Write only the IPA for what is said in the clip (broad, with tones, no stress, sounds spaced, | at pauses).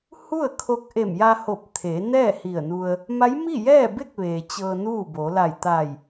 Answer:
h u˥˨ ə̯ kʰ o˧ k̚ ʔ e˧˩ m j a˧ h o˧˩ p̚ t̪ʰ e˩˧ n ɛː˥˨ h i˧˩ ə̯ n u˧ ə̯ | m a˧˥ j m i˥˨ j ɛː˥˨ b e˥˨ k̚ ʋ eː˩ t͡ɕ ɤː˧ n uː˥˨ b o˩˧ l a˧˩ j t̪ a˧˩ j